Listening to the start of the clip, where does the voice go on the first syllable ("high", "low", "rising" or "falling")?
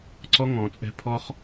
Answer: high